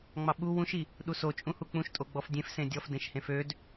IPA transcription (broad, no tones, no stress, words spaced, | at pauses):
ŋ͡mɑɓu wũʃi | ɗusot͡ʃʼũhu k͡pũʃtʼo ɡ͡bɔfdʲẽf sẽdʲɔf dẽʃhẽfød